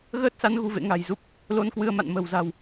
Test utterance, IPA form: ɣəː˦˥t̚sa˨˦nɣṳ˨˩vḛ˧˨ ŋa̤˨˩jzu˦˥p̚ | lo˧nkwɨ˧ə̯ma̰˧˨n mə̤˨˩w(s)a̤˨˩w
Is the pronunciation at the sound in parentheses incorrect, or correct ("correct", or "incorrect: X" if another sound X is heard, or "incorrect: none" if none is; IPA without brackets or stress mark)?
incorrect: z